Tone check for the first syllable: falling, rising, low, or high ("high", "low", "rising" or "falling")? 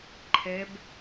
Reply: rising